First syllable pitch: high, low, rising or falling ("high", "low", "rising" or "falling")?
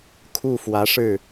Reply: falling